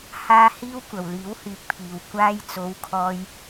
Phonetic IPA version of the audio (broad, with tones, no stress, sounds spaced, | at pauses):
h aː˧ h iː˧ w kʷ ɐ˨ w l iː˨˥ w h yː˨˥ k̚ pʰ iː˨ w kʷ aː˧ j t͡s o˨˧ w kʰ ɔː˧ j